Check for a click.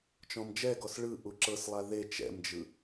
present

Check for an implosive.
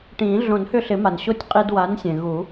absent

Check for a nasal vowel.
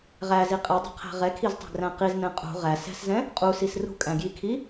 present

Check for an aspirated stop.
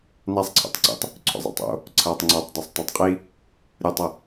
present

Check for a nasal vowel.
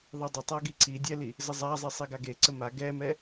absent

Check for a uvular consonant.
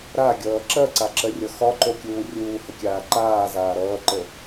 absent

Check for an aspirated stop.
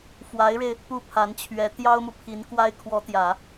present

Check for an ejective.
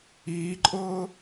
present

